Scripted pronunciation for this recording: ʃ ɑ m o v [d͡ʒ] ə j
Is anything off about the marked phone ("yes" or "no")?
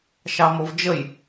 no